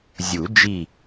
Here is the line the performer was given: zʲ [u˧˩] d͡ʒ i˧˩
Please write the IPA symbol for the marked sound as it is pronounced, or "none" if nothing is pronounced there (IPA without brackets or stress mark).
u˨˩˦